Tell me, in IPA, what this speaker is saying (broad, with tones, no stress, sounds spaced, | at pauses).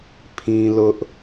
pʰ ĩ˦ l ʊ˦ ʔ